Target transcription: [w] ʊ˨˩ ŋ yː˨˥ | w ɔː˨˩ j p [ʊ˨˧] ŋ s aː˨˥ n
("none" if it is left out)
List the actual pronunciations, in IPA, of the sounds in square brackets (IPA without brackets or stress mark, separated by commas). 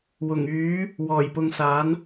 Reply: w, ʊ˨˧